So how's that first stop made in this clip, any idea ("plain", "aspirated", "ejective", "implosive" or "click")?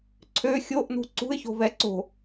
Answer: click